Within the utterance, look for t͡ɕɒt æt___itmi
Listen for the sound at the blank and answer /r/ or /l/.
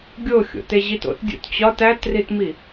r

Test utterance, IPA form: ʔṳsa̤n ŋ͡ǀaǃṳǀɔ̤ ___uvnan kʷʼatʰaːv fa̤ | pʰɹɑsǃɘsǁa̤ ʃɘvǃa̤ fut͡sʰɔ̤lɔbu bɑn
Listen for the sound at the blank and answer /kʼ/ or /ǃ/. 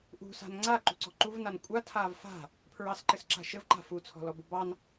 ǃ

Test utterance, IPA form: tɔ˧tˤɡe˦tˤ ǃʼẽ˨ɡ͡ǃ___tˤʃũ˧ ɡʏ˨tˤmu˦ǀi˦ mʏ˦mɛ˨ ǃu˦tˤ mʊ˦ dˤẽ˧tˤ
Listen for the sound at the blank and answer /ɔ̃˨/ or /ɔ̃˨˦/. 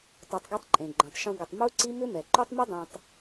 ɔ̃˨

